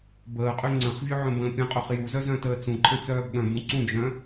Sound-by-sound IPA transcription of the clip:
b əː qʼ ø ŋ͡ǀ ə̃ χ vʲ ø ʕ œ̃ b ə̃ː pʲ ɐ̃ qʼ ø χ j u z œ z œ̃ t əː t͡s ũ ǃʰ ə̃ t͡s œː b ɠ œ̃ b ũ ǀ ũ d͡ʒ œ̃

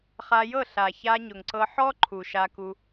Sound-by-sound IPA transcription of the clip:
χ a˧ j ɤ˦˨ ɬ a˨ ç a˧ ɲ ʊ˨ ŋ ǀ ɤ˧ ħ ɔ˦ ǃʰ u˨ ʃ a˧ k u˧

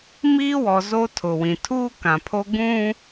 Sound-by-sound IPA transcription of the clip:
m iː˦ w ɔ˨ z o˦ tʰ ʊ˨ w ĩ˨ tʰ uː˦ k ã˨ pʰ o˦ ɡ ũ˦

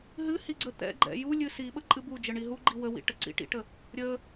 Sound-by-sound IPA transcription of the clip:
ɦ ɨ h i ɡ͡ǀ ə t̪ ɛ̰ ɡ͡ǃ ɛ̰ j u lʲ ɨ s i ɓ ə ǃʼ ɨ b u d͡ʒ ə ɳ i ɦ u ɡ͡ǃ i w ə w ḭ ʈ ə ǀ ḭ ʈ ḭ ʈ ə | ɾʲ ə

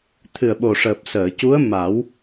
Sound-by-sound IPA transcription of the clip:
t̪ʰ ɨ˨˩ ə̯ ɓ o˨˩ ʂ əː˨˩ p̚ s əː˨˩˨ c u˧˥ ə̯ m a˨˩˦ w

